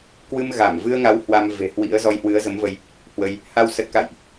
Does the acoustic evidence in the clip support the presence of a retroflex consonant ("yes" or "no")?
no